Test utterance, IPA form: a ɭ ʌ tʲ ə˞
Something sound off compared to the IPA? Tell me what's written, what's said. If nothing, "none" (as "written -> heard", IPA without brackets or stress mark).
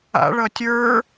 a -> a̰